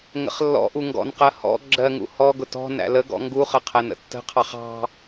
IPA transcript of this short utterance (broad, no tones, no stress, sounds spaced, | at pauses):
ŋ ə̰ χ lː ɔ̰ ʔ u ŋ ɡ ɔ̰ n q ɜ h ɔ̰ ɡ͡ǁ ɜ ŋ ṵ h ɔ ɡ ʊ t ɔ̤ n æ̰ l ə ɡ ɔ̰ ŋ ɡ u χ ə qʰ æ n ə̰ tː ə̤ qʰ ɑ χ ɑ̤